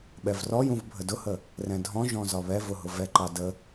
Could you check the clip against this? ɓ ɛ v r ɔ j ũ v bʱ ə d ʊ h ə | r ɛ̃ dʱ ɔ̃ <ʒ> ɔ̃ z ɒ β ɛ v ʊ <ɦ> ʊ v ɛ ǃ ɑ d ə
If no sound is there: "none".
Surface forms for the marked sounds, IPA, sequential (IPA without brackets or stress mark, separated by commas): ʒ, ɦ